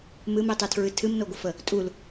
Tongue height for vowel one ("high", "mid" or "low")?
high